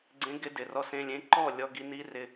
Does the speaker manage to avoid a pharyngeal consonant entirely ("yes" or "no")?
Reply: yes